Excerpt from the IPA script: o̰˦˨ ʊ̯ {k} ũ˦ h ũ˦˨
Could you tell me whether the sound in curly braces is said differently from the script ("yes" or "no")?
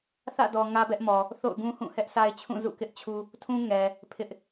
yes